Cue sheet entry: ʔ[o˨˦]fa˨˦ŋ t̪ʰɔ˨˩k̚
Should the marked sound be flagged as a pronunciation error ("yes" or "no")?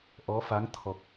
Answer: yes